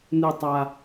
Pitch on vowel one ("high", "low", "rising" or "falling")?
low